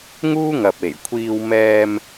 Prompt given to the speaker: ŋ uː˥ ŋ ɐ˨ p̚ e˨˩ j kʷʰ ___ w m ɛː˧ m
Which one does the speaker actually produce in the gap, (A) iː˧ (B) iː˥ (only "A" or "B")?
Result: A